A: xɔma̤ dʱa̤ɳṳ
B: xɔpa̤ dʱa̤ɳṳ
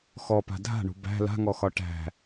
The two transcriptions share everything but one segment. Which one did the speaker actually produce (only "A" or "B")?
B